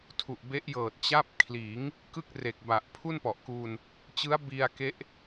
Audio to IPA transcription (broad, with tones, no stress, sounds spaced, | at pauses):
tʰ u˨˩ ʔ b e˦˥ ʔ j ɤː˨˩ t̚ t͡ɕ a˦˥ p̚ kʰ l iː˩˦ ŋ | k ɯ˥˩ k̚ r e˨˩ k̚ b a˨˩ ʔ pʰ u˥˩ n p ɔ˨˩ ʔ k uː˧ n | t͡ɕ ɯ˦˥ a̯ b i˧ a̯ k e˦˥ ʔ